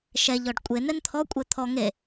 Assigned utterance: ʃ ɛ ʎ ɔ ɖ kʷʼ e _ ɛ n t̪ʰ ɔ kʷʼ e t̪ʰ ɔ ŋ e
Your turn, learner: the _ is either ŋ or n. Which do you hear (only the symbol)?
n